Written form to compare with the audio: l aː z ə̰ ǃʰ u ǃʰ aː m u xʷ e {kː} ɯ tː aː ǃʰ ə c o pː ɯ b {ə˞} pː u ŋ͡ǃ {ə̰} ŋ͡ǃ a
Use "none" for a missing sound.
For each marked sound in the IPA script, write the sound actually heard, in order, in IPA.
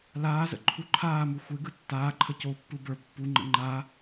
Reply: ɡ, ə˞, ə̰

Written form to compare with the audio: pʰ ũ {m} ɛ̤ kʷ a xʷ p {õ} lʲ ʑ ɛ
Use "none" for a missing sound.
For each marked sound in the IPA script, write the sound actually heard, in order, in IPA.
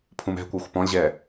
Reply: m, ɔ̃

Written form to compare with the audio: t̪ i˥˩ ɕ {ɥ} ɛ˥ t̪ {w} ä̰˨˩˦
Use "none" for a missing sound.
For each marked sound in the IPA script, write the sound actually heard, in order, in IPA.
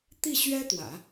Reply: ɥ, w

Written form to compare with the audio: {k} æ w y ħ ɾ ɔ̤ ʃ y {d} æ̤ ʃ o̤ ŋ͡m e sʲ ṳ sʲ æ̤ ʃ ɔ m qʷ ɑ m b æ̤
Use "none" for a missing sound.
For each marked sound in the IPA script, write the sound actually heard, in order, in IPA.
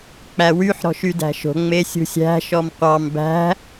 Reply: k͡p, d

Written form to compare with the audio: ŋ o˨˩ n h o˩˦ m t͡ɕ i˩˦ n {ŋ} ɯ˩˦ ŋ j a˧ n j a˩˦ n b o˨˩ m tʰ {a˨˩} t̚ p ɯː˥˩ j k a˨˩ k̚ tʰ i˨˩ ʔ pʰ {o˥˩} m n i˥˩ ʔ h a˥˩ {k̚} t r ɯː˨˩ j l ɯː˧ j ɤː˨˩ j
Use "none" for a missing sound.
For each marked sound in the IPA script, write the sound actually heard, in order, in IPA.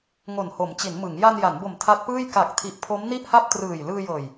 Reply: m, a˦˥, o˦˥, p̚

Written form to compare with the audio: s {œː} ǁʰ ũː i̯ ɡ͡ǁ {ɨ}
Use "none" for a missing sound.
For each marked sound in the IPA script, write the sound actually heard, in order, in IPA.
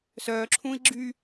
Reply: œː, y

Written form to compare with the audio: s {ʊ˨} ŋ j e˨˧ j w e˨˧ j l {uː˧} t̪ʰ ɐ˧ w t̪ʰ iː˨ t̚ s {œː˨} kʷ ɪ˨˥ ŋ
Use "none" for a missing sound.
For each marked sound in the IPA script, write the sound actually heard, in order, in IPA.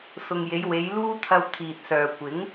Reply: ʊ˨, uː˥, œː˨

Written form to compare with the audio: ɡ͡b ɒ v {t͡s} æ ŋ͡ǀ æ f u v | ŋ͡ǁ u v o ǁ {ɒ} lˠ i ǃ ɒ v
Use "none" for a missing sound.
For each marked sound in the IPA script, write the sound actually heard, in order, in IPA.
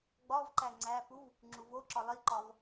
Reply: ǃ, ɒ

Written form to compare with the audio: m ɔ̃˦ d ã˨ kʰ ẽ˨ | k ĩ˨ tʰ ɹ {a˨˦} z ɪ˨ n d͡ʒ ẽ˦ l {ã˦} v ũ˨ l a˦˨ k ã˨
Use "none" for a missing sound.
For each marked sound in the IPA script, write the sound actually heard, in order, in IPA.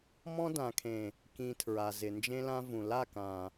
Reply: a˨, ã˦

